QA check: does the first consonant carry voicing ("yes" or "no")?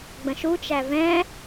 yes